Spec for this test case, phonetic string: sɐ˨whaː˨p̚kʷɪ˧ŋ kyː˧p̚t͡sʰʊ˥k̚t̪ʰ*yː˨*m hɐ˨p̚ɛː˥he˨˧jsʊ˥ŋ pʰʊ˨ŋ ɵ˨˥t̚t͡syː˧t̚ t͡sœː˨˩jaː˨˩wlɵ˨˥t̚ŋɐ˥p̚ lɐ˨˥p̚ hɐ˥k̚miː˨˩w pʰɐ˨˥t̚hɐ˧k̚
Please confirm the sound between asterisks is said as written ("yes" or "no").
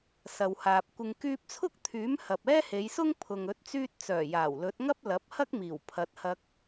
no